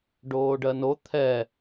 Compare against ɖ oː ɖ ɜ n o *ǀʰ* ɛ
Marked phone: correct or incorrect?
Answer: incorrect